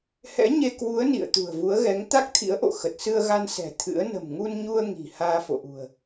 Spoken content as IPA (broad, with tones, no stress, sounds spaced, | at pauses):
h ɛ̰˧˥ ɲ e˧ k w u˨˦ ə̯ n ḭ˧˨ ə̯ t̪ ṳ˨˩ ə̯ v u˨˦ ə̯ ɣ ɛ˨˦ ŋ t̪ a˦˥ k̚ t̪ʰ ḭ˧˥ ə̯ ʔ o̰˧˨ x ə˨˩ t̚ s ɨ˧ ə̯ ɣ a˧ n s ɛ̤˨˩ t̪ʰ ɨ̰˧˥ ə̯ n ə̤˨˩ m ŋ u˧ n ɲ u˧ ə̯ ŋ i̤˨˩ h aː˧ f o̰˧˨ ʔ ṳ˨˩ ə̯